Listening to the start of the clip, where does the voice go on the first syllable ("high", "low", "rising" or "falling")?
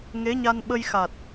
rising